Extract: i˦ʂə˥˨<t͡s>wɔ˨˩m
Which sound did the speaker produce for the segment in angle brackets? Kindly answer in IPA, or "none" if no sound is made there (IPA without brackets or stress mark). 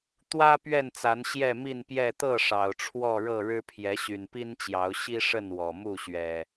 n